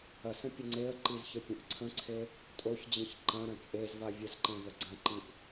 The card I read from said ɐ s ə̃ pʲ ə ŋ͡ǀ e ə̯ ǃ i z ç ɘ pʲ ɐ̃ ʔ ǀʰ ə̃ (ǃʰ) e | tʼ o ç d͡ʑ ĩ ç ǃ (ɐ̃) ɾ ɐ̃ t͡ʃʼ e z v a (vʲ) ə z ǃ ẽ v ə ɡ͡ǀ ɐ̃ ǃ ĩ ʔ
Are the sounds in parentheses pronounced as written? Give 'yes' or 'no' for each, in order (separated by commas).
no, yes, yes